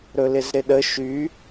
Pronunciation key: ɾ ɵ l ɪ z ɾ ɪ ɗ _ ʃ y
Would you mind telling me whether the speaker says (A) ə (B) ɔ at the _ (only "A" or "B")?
A